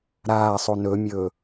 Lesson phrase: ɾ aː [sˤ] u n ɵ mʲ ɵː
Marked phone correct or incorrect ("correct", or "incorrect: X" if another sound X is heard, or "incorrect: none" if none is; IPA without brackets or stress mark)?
correct